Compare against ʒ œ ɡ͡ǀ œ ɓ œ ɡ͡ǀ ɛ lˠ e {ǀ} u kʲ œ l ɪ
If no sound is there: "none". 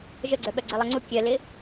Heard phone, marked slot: ŋ͡ǀ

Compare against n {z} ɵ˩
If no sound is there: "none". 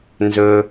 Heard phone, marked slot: z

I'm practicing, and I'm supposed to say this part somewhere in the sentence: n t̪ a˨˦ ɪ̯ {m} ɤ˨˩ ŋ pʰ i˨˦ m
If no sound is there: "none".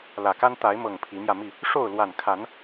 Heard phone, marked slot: m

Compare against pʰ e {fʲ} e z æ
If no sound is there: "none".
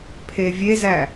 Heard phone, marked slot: vʲ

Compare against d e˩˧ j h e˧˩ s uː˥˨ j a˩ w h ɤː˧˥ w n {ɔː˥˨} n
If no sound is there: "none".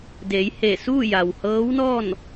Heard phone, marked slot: ɔː˥˨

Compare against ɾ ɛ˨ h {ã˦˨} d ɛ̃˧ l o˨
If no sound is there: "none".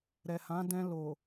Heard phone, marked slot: ã˨˦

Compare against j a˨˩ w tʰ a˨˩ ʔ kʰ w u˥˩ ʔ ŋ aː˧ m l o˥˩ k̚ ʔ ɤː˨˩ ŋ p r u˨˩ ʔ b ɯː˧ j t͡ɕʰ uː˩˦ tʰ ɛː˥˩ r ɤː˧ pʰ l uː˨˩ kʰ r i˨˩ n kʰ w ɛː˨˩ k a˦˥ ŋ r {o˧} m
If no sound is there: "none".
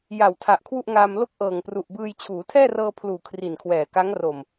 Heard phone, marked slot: o˨˩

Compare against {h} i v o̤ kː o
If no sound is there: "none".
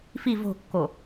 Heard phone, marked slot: f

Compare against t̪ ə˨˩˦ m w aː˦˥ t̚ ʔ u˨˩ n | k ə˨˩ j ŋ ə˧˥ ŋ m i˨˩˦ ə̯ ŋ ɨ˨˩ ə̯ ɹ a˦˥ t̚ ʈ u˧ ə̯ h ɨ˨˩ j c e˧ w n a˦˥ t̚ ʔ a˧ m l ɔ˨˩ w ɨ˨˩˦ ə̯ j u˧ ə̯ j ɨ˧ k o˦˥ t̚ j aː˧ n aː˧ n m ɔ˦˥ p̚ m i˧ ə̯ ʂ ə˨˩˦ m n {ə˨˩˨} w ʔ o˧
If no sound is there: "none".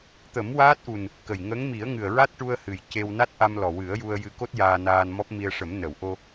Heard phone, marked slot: ə˨˩˨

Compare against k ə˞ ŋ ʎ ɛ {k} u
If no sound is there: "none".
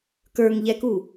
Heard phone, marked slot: k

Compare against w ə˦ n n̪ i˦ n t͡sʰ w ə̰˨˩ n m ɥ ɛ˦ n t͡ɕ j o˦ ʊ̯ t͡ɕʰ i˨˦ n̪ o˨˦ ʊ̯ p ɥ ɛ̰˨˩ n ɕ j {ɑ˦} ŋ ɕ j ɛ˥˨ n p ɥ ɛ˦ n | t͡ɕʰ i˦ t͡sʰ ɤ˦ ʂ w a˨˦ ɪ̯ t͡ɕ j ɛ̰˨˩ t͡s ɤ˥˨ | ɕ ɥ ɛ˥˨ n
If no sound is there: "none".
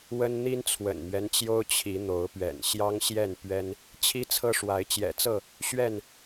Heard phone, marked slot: ɑ˦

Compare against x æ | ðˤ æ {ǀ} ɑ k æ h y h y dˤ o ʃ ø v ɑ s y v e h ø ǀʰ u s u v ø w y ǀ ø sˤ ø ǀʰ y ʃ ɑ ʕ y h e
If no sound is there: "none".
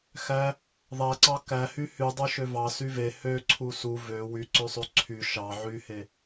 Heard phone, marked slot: ǀ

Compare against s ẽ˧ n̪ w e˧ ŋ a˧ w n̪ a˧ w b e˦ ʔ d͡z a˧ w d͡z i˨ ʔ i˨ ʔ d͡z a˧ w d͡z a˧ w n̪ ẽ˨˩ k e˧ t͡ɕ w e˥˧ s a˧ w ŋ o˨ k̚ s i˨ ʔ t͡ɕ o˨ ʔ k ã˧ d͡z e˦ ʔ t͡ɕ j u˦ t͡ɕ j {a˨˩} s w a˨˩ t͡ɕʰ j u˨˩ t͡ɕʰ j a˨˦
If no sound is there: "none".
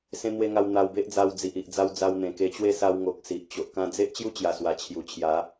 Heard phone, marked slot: a˨˩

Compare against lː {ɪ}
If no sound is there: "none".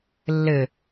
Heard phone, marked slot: ɪ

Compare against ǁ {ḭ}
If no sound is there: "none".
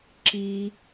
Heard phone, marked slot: i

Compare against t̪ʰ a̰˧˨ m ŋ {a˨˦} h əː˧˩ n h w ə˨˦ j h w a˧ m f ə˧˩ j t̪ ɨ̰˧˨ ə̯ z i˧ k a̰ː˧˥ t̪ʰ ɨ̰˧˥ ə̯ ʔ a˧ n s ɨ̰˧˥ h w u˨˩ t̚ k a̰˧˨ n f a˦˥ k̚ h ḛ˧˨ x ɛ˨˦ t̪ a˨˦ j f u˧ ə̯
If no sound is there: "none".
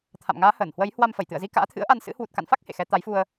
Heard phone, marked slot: aː˨˦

